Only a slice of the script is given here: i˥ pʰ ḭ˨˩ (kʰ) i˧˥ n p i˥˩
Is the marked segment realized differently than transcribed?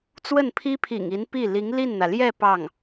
yes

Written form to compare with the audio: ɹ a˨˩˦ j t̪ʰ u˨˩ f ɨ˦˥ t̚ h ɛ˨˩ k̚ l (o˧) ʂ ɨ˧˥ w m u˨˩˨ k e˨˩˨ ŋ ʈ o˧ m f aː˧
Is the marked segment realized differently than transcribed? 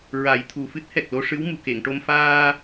no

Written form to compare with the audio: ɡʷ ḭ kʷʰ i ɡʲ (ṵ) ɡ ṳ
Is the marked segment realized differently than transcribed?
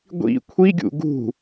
no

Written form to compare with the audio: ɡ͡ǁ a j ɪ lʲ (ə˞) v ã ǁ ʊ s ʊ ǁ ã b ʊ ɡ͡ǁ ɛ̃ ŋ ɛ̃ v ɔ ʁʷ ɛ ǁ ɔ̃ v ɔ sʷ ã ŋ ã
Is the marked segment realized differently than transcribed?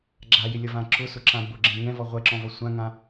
yes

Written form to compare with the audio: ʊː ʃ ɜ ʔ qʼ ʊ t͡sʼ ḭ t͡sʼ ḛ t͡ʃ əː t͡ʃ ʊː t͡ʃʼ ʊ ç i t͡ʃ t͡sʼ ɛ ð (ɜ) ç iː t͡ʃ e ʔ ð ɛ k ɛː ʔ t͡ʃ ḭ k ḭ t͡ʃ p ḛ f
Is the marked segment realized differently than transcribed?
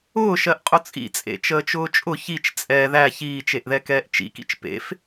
yes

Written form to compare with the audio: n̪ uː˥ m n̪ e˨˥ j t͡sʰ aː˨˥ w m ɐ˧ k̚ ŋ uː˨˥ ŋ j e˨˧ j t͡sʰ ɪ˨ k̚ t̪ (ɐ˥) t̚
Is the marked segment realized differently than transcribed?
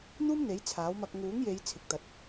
yes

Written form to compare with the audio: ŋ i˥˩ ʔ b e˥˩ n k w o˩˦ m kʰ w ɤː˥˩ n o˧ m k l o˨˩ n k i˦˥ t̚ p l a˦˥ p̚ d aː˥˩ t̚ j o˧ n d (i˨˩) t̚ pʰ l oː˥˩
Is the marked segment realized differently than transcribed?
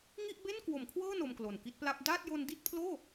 yes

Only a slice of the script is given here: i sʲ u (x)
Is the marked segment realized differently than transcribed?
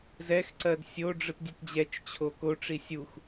no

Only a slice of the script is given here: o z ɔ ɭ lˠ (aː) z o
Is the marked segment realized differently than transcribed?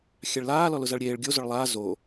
no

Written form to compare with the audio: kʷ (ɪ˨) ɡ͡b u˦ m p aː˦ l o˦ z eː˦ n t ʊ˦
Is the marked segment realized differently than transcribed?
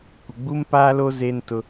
no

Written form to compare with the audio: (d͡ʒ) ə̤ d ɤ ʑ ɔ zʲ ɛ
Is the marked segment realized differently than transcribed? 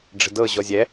yes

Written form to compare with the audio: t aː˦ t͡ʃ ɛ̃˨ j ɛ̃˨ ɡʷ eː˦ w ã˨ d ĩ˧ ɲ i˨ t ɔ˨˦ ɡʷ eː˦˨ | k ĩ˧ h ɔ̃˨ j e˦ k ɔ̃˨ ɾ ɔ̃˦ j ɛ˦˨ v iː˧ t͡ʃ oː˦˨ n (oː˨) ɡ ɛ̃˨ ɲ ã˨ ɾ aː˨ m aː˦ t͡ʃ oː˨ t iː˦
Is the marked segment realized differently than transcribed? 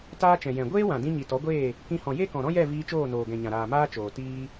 no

